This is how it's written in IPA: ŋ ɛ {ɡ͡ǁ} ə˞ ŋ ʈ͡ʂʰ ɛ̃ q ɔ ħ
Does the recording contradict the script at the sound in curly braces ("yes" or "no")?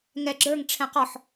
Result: no